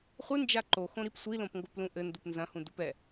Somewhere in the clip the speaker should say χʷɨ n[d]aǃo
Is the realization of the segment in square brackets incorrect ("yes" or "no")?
yes